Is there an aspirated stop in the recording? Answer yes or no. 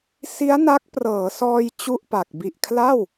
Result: yes